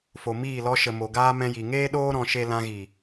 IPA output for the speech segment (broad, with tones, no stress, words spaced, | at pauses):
fo˨ miː˦˨ lɔ˧ʃə˨ mo˨ɡaː˦ mɛ̃˧ji˨ ŋeː˦ɗoː˦ ɾɔ̃˧ʃe˦ lã˧ɣi˨